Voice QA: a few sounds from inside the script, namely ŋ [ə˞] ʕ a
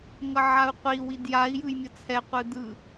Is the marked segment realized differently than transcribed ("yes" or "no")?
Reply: yes